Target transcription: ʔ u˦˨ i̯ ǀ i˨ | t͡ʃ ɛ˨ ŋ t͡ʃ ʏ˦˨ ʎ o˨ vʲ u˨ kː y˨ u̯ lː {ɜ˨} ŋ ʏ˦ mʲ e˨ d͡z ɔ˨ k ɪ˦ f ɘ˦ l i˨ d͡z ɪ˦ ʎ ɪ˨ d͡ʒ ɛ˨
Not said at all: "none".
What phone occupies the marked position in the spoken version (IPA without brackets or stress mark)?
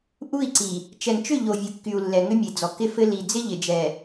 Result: ɛ˨